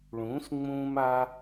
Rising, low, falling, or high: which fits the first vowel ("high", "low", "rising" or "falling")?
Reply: rising